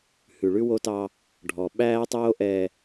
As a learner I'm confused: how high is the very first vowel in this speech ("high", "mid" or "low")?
high